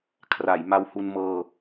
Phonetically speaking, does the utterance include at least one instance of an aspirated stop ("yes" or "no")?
yes